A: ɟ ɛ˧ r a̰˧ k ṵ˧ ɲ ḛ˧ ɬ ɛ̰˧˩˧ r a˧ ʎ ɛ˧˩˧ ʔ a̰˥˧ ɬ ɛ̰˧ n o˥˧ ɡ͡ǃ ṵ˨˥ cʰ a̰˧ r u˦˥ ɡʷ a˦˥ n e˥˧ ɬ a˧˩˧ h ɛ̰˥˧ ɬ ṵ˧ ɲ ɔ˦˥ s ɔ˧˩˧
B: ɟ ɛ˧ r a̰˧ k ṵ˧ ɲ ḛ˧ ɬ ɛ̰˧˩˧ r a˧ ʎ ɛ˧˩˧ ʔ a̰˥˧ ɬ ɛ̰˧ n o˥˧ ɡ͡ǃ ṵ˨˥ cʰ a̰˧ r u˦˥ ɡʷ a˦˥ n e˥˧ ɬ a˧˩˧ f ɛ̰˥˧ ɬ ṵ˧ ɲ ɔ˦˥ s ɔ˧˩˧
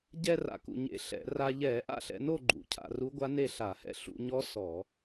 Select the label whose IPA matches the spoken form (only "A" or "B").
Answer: A